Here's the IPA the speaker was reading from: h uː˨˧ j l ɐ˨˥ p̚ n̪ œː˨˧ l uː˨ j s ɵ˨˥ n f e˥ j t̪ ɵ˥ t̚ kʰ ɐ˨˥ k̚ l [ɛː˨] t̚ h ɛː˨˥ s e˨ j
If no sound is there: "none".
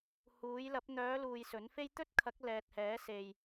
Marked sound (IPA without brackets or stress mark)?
ɛː˨